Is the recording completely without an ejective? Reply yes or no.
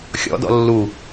yes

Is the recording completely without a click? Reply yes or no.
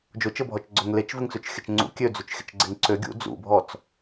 no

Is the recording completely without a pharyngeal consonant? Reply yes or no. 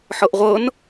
no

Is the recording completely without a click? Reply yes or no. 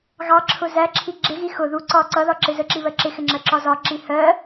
no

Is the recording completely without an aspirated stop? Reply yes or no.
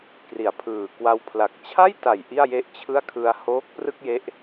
no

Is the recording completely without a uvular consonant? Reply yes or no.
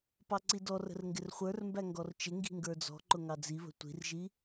no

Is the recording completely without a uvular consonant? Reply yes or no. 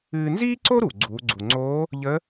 yes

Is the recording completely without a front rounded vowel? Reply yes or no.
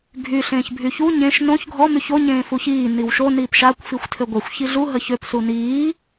no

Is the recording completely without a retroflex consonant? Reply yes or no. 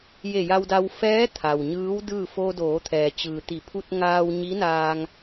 yes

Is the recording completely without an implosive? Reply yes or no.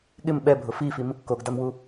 no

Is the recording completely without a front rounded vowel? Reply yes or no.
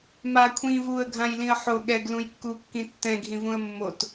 yes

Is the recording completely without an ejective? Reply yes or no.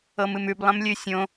yes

